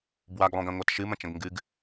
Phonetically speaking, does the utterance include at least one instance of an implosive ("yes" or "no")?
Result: no